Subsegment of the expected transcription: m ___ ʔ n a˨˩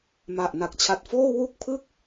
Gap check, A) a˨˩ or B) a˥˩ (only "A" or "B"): A